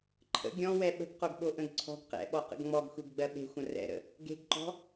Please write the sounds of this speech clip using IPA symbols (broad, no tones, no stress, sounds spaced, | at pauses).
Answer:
ǃʰ ə̰ ɡʲ ɔ̃ w ɛ ɓ ə̤ ɡ q o ɡ ɓ o ʔ ə̃ ɡ ǀʰ ɔ̤ ɡ q ɛ̰ ɓ ɔ q ə̰ ɡ ŋ͡m ɔ ɡ xʷ e ɡ ɡ͡b ɜ ɓ e̤ xʷ ə̃ r ɛ̰ ɾ ə̰ | ɡ e̤ ɡ ǃ ɔ̤